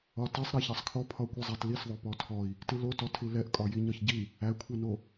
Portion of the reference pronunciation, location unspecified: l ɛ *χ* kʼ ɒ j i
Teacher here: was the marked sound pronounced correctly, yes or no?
no